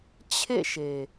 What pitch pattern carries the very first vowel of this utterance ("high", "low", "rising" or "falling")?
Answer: falling